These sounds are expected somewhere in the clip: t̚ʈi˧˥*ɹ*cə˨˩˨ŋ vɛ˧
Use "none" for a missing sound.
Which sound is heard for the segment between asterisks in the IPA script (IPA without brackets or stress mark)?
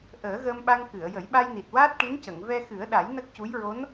n